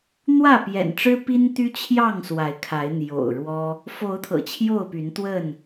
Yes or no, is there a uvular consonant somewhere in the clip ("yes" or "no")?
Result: no